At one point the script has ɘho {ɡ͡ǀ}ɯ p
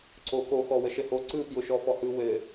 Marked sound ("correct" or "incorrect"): incorrect